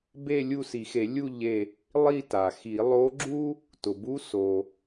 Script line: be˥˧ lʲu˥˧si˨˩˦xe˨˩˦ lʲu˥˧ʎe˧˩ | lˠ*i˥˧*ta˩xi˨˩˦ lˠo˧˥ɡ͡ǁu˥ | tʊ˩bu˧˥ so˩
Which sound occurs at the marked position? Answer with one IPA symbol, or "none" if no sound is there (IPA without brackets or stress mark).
i˥˧